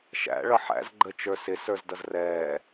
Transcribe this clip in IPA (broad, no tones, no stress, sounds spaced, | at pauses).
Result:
ʃ æ̰ ɭ ʌ ħ æ̰ z ɡ͡ǃ ə t͡ʃ ə˞ s ɪ s ə˞ z d ʌ z r ɛː